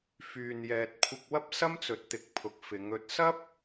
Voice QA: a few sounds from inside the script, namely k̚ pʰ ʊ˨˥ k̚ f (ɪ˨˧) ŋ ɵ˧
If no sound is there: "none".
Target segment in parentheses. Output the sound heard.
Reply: ɪ˨˧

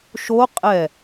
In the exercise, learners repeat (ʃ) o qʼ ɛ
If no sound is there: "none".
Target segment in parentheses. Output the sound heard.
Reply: ʃ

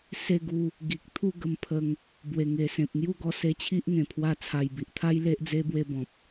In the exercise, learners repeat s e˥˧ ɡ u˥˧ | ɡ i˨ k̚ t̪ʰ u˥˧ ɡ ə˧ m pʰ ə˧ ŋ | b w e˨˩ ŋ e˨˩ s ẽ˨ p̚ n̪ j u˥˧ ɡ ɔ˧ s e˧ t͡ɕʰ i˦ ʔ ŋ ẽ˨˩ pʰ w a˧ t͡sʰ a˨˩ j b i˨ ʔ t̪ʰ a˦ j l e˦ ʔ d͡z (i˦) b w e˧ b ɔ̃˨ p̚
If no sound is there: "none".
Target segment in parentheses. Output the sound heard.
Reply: e˦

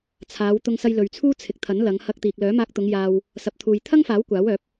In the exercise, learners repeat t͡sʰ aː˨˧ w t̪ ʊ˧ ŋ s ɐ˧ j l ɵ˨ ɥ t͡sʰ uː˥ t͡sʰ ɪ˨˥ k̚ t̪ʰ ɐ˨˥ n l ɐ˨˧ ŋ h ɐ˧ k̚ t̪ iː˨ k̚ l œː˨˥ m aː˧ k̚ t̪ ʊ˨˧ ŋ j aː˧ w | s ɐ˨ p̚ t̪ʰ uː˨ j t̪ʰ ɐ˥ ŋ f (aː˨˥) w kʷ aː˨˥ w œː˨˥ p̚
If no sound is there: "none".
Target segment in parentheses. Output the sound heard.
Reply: aː˨˥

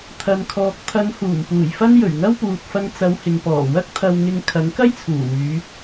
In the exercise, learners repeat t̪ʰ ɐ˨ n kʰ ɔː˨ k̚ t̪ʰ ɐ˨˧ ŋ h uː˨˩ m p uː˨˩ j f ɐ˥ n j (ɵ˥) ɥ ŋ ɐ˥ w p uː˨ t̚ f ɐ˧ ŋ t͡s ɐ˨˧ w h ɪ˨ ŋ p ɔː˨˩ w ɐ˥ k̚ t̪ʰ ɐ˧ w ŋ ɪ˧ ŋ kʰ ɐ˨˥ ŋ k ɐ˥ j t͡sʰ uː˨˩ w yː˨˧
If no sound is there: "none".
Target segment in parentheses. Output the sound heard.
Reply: ɵ˨˩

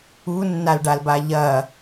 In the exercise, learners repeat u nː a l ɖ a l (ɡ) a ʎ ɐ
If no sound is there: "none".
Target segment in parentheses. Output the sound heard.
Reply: b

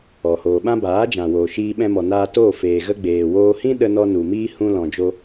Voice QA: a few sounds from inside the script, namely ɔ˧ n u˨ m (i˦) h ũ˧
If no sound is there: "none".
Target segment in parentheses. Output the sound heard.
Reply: iː˦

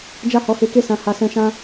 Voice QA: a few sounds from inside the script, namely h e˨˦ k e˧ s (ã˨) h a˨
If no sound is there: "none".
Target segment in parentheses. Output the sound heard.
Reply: ã˨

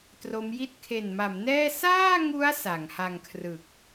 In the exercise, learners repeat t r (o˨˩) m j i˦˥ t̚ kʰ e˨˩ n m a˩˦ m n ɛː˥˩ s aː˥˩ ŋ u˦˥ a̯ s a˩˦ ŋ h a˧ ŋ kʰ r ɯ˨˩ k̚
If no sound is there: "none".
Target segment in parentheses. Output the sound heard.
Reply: o˦˥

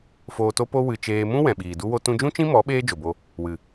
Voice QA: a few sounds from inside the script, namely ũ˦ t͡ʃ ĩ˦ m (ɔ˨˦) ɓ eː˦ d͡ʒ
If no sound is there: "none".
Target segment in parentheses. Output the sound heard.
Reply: ɔ˨˦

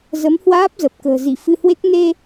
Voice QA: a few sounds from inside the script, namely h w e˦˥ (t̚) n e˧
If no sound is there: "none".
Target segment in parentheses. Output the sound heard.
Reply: k̚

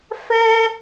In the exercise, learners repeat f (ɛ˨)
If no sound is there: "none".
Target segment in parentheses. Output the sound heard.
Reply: ɛ˦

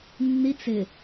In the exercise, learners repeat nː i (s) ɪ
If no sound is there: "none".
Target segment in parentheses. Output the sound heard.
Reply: t͡s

